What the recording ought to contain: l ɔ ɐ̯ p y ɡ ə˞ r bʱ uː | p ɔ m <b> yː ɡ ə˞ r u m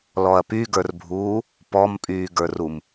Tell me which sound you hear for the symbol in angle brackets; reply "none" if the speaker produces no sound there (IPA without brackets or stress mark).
pʼ